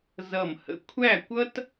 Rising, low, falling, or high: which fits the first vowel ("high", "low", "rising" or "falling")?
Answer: falling